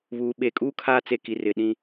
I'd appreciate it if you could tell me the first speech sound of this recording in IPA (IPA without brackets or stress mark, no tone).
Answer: β